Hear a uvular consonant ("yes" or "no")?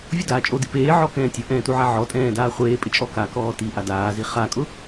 yes